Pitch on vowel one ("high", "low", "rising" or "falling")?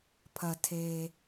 low